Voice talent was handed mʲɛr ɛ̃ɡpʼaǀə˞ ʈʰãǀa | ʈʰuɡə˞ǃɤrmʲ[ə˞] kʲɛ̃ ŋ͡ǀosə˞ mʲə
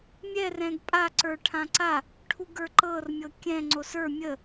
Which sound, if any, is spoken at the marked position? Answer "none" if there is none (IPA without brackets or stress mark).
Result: ɤ